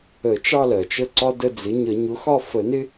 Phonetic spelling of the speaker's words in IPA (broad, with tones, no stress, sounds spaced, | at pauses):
ə˨˩˦ t͡ʃ ɑ˦˨ l ɜ˩ t͡ʃ ə˦˨ ǀ ɒ˦ d ə˦˨ d͡z ɪ˩˥ ɲ ə˨˩˦ ɲ ʊ˩˥ x ɒ˦˨ f ə˨˩˦ n ɪ˦